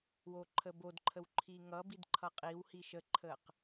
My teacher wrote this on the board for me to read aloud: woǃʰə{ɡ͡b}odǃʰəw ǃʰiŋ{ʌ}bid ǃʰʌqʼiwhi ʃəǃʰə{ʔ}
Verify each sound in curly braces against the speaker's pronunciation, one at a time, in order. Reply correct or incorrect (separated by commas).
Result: incorrect, correct, incorrect